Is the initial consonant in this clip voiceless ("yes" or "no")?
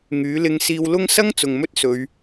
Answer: no